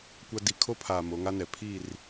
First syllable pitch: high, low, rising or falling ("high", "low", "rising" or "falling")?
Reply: high